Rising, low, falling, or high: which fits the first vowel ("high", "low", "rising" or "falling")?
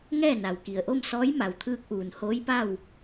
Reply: falling